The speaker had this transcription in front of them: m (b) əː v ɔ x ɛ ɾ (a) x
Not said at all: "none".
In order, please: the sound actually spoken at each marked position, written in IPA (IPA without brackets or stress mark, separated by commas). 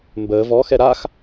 b, a